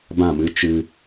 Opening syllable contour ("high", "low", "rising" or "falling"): falling